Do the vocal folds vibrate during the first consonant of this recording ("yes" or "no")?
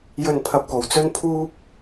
yes